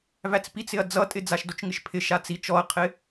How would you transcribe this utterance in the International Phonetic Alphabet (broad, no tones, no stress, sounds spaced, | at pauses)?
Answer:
v æ t͡s p i t͡s ɪ ɐ̯ d͡z ʌ tʼ ɪ d͡z a ʃ d o t͡ʃ ŋ ɪ ʃ pʰ ɪ ʃ a t͡s i t͡ʃ ɔ ɐ̯ qʰ ɪ